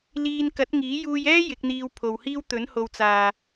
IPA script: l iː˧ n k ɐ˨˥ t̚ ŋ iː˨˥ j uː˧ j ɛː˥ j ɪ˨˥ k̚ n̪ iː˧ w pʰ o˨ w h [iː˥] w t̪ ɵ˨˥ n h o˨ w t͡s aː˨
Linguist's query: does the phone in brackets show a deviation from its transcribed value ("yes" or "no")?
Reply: no